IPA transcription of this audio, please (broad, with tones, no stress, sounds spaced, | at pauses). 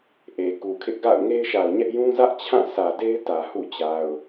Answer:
ʔ e˨ k u˨ kʰ ɪ˦ ʔ ɡ a̰˦˨ ʊ̯ ŋ e˦ ɪ̯ ʃ a˨ ʊ̯ ɲ ɛ˦ ʔ j ũ˦ z ä˦ ʔ t͡ɕʰ ã˦˨ s ä˨ d e˦ ɪ̯ t ä˨ h ṵ˦˨ t͡ɕ a˨ ʊ̯